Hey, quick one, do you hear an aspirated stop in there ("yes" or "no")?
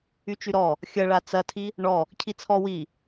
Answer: yes